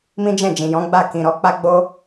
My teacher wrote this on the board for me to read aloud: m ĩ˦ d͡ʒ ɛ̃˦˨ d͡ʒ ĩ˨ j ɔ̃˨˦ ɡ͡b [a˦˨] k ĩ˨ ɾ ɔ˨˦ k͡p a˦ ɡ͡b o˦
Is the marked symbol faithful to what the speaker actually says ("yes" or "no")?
yes